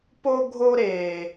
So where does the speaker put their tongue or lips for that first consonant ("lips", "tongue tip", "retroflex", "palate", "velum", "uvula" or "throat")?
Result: lips